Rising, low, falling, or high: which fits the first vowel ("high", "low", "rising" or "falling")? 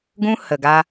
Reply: high